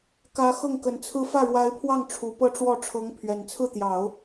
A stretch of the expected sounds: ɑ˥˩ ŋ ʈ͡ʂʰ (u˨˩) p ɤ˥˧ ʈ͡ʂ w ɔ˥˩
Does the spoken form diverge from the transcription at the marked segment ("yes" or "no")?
no